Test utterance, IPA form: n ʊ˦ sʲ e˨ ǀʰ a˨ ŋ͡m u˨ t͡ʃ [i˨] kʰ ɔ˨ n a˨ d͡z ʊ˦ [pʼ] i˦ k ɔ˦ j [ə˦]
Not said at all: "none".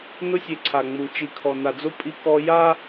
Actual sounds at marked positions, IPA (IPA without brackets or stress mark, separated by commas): i˨, pʼ, a˦